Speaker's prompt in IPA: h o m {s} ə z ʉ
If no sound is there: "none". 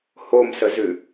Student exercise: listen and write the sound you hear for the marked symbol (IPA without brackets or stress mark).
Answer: s